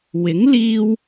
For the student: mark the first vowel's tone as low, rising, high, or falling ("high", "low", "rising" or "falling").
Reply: rising